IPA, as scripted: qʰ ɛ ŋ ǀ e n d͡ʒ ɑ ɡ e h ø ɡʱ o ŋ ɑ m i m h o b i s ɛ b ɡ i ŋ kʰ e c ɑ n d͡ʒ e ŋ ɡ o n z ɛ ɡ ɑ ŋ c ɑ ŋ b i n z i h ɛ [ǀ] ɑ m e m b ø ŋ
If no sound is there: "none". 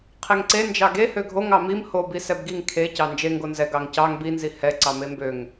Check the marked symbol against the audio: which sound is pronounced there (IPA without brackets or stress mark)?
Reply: ǀ